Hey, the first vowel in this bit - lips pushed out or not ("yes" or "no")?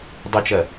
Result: no